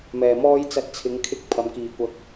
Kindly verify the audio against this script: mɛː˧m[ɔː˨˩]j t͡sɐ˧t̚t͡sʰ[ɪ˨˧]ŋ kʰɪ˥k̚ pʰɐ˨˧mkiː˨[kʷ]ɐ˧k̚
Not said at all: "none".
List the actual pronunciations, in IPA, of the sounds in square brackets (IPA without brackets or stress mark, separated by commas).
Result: ɔː˥, ɪ˨˧, kʷ